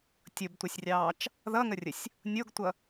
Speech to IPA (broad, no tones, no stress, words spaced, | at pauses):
tʲʊbtʷʌsʲrʲɑːt͡ʃ | ðʌŋərʲəsʲ | nʲoɡtʷʌ